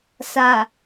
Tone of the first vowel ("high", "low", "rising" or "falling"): low